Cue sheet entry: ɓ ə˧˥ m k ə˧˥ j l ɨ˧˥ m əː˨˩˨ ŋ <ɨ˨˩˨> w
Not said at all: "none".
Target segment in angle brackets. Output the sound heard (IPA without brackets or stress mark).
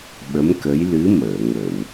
ə˨˩˨